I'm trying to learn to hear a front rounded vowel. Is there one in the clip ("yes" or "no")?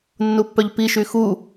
yes